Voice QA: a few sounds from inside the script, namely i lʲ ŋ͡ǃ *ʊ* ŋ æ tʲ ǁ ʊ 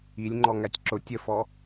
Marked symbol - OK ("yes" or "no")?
no